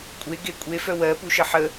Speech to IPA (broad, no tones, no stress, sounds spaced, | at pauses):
kʷʼ e ɡ e kʷʼ e f œ w ɜ p u ʃ ə ħ ə